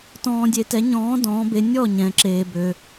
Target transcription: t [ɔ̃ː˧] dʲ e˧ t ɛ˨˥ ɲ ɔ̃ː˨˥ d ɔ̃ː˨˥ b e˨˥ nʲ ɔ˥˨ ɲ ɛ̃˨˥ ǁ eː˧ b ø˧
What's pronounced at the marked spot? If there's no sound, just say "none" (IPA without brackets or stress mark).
ɔ̃ː˧